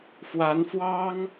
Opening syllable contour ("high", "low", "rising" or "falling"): rising